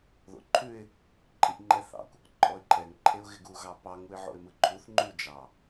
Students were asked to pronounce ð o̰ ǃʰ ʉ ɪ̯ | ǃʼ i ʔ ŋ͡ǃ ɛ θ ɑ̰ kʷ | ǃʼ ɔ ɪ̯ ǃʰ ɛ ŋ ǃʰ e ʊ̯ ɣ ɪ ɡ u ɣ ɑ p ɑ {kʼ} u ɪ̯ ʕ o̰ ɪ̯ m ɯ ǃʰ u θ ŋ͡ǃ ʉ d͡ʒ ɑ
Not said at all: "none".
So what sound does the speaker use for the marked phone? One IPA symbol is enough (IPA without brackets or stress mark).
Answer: ŋ